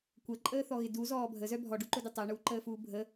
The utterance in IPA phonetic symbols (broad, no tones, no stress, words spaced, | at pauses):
kʷəǃʼəːθɔɣɪ duzɔː bʱəzœ bʱɔɖuǃʊdɪ tˤəːɳuːǃəːfuː bʱə